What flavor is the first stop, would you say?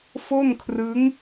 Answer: aspirated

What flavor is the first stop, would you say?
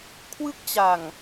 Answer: aspirated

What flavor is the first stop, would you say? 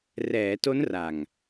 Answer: plain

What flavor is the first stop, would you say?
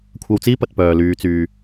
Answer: aspirated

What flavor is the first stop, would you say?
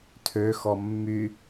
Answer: aspirated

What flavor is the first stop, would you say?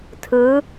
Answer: aspirated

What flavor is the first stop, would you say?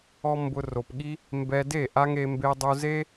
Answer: plain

